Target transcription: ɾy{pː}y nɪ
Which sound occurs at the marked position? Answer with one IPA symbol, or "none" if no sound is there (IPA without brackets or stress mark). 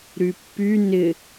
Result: pː